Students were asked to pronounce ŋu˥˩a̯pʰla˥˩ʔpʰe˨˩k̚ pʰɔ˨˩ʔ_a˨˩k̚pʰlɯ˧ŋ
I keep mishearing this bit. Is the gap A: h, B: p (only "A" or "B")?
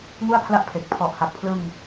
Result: A